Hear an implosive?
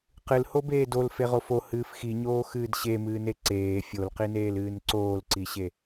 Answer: no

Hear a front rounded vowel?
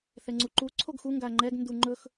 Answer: no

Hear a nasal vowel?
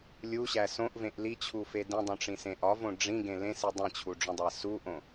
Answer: yes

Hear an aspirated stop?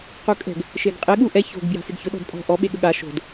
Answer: no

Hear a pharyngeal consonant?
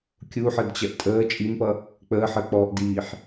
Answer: yes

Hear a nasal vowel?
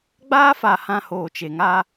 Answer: yes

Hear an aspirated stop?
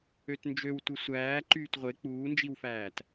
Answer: no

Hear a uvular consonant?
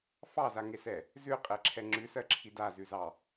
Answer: yes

